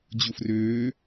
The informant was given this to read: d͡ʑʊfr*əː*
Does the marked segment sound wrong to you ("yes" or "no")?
yes